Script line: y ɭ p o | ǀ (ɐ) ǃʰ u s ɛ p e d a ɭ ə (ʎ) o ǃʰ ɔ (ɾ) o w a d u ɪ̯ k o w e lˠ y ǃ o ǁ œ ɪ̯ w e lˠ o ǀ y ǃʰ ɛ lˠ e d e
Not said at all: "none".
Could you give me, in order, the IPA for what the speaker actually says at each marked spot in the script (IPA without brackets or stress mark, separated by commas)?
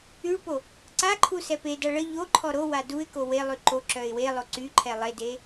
a, ʎ, ɾ